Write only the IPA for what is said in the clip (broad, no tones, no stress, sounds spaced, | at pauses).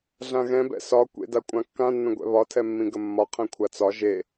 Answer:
ɮ ã ɣ ɛ̃ b ɛ̰ s ɒ kʷ ḛ d a kʷʼ ã kː ã nː ə̃ ɡʷ ɛ̰ β ɒ tʰ ɛ mː ĩ ɡ ə mː ɒ qʰ ɛ̃ kʷʰ a t͡s ɒ ʒ e